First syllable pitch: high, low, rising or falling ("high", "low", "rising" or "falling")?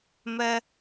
high